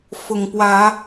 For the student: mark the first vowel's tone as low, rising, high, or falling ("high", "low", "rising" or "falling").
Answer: low